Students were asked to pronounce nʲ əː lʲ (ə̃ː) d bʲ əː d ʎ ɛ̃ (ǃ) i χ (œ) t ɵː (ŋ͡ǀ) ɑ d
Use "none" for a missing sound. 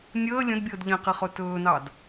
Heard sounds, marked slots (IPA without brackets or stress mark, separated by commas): ə̃, q, ɵ, n